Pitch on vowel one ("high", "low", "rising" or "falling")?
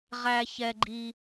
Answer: high